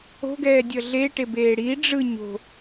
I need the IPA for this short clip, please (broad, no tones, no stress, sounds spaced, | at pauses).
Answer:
o̤ ɡ ɛː dʲ ʌ ɮ e ʈ e b eː ɽ i ɖ͡ʐ ɯ ɲ o̤